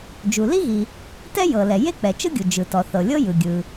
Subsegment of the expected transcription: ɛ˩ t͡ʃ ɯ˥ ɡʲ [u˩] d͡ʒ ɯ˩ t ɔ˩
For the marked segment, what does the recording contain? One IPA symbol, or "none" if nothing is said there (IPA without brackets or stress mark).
u˩